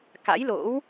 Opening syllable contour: rising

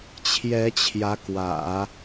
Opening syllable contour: rising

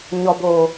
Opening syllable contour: low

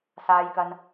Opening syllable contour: low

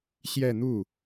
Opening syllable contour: falling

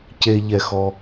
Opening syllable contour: low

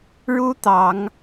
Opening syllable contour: high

